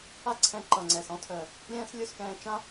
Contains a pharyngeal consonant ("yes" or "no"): no